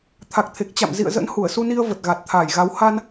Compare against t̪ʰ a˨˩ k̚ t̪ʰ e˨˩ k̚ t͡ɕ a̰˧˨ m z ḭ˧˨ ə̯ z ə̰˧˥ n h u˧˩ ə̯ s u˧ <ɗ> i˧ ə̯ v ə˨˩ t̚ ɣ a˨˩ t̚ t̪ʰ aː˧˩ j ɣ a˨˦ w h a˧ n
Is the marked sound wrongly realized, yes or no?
yes